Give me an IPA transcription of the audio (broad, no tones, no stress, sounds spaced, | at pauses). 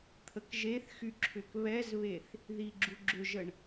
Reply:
t̪ʰ ə k ʒ e θ x y ǁʰ ʏ k β ɛ z β e θ | ð i ɡ͡ǁ u ɡ͡ǁ ʏ ʒ ə ɳ